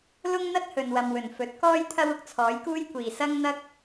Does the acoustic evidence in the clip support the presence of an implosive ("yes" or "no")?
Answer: no